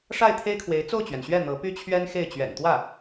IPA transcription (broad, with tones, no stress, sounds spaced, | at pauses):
ʂ a˥˩ ɪ̯ t̪ʰ e˥ ɪ̯ kʰ w e˧˥ ɪ̯ t͡s o˥˩ ʊ̯ t͡ɕ ɥ ɛ˩ n ɕ ɥ ɛ˥˩ n̪ ɤ˧˥ p y˥ t͡ɕʰ ɥ ɛ˥ n x e˥˩ ɪ̯ t͡ɕ ɥ ɛ̰˨˩ n t̪ w ä˥˩